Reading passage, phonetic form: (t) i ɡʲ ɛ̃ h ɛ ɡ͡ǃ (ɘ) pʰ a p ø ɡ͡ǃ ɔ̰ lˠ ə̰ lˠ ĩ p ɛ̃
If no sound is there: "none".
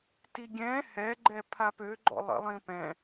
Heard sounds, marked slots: t, ɛ

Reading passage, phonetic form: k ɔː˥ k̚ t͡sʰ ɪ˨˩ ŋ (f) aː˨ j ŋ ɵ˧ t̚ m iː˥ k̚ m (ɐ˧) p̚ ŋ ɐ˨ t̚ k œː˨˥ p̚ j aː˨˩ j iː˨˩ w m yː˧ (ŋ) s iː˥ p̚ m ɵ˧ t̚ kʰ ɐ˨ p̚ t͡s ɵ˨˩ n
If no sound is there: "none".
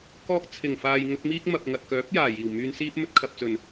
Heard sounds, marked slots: f, ɐ˨, n

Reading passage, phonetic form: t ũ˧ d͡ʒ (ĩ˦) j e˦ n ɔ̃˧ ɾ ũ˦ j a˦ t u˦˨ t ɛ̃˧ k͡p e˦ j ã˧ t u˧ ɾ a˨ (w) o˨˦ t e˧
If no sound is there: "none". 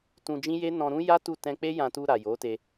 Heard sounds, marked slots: ĩ˦, j

